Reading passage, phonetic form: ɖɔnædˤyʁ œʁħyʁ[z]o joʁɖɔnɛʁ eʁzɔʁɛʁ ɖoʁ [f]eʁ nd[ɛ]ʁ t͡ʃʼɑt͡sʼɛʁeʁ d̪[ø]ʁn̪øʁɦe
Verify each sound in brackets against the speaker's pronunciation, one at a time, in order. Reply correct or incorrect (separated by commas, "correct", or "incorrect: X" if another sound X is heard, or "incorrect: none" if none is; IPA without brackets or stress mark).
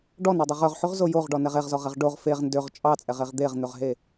correct, correct, incorrect: ø, incorrect: e